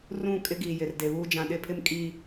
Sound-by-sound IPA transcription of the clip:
r ũ˦˨ kʼ ɪ˦ ɡ iː˨ j ɪ˨ r d e˨ β uː˦ d͡ʒ ã˨ ɗ ɪ˦ pʰ ɪ˦ m kʼ i˦

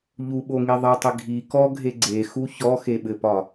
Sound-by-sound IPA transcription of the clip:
ʎ u ɓ o ŋ i ðˤ ɘ tˤ ɪ ɡʱ i k ɔ ɡʱ e ɡ͡ǀ e x u ç ɔ x e ɓ ɘ p ɒ

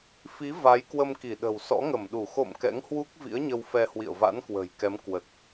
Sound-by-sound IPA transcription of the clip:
f i˨˦ v a˨˦ j k w ə˧ m k i˧˩ ɗ ə̤˨˩ w s ɔ̰˧˥ ŋ ə˧˩ m ɗ u˧˩ x o̰˧˨ m k ɛ̰˧˥ ŋ h w u˦˥ k̚ v ḭ˧˥ ə̯ ɲ ə˧ w f ɛ˧ h w ḭ˧˨ ə̯ v a̰˧˥ n k w ə̤ː˨˩ j k ɛ˨˦ m k w ə˨˩ t̚

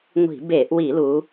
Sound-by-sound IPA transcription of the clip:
ŋʷ i̤˧˩˧ b e˧˩˧ ʔ w i˧˩˧ l u˩˧

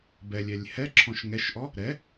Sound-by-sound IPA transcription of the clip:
b ɛ lʲ ɛ lʲ h ɛ ǁʰ ɔ̃ ʃ ŋ ɛ ʃ ʔ ɔ | ɾ ɛ

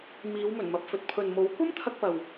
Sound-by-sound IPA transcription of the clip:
m iː˨˧ w m ɵ˨˩ n m ɐ˨ p̚ f ɵ˨ t̚ pʰ ɵ˨ n m o˨˥ w kʷ ɐ˥ m t̪ʰ ɐ˧ k̚ p ɐ˨ w

